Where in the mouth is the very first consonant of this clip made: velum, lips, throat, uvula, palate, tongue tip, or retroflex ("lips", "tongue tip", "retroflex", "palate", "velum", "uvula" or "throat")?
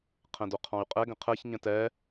uvula